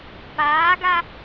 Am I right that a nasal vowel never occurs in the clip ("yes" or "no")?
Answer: yes